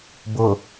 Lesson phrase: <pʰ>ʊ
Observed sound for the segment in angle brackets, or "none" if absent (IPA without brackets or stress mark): b